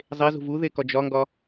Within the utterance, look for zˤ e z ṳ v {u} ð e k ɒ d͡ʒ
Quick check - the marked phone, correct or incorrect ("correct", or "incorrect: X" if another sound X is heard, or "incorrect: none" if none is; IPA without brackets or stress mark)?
correct